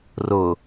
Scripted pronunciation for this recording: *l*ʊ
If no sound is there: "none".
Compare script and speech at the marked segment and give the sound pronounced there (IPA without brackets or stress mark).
r